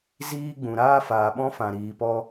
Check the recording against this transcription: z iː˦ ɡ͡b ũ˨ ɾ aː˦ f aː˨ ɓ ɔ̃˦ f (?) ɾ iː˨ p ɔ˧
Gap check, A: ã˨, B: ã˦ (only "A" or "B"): A